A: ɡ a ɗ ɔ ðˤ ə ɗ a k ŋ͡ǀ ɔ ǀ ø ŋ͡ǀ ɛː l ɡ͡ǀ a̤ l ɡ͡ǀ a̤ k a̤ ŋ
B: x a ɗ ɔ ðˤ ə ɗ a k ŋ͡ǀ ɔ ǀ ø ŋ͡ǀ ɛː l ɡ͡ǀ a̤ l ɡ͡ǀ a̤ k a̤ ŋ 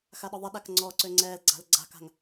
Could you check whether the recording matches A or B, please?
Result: B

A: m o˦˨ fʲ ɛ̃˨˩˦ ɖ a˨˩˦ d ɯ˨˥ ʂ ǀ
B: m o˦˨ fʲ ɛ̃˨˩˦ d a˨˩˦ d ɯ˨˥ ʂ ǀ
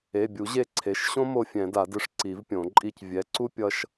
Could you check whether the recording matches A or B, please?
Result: B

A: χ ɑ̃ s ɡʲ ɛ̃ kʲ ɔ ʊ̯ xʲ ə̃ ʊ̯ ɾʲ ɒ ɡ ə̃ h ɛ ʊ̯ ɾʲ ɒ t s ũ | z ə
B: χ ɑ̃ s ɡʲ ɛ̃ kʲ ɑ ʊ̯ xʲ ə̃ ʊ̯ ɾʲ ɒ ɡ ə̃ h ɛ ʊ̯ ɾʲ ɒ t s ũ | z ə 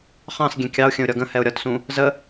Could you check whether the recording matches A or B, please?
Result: B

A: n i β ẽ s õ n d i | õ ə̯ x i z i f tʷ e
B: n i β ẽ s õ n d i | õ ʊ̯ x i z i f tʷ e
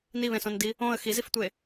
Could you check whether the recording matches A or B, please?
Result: A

